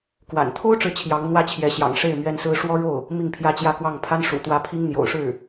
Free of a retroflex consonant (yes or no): no